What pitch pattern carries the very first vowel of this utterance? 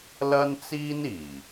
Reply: high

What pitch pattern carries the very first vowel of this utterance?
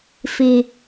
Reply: low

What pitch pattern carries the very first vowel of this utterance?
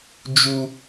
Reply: high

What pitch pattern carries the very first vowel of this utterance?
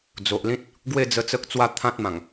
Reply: low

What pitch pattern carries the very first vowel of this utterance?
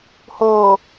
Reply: low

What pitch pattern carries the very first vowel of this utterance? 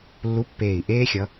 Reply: rising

